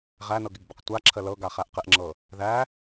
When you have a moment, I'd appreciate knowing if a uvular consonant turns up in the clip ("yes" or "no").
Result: yes